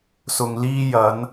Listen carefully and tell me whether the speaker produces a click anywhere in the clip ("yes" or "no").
no